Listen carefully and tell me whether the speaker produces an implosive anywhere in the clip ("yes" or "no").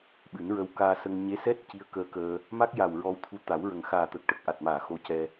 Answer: yes